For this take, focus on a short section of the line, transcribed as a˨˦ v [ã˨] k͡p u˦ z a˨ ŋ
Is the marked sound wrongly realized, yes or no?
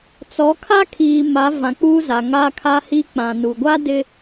no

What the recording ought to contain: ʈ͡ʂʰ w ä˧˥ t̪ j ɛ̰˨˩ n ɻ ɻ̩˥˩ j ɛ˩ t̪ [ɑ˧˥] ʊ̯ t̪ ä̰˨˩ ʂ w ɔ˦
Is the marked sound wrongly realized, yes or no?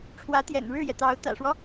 no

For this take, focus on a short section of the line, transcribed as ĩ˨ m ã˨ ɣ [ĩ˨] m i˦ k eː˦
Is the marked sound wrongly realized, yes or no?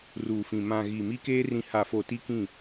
yes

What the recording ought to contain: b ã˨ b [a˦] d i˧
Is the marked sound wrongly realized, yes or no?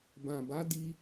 yes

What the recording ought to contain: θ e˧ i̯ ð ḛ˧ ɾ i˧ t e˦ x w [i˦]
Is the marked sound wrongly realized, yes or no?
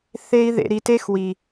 yes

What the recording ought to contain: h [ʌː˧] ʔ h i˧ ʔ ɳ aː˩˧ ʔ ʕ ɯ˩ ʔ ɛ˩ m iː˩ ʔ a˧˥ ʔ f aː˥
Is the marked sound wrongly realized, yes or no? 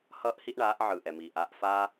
no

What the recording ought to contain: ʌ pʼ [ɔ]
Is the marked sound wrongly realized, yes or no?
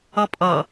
yes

